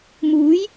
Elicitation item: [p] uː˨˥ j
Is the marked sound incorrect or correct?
incorrect